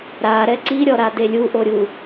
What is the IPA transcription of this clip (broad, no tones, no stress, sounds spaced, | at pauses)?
ɾ a ɾ ɛ ǀ i ɾʲ ɔ ɾ a d e lʲ u ʔ o ɾʲ u